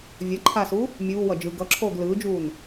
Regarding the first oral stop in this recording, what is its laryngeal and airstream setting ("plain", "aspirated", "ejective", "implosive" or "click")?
click